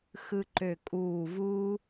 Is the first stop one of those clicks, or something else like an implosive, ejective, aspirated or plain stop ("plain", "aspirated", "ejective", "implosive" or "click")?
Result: click